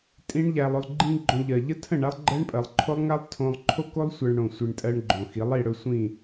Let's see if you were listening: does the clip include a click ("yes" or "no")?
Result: yes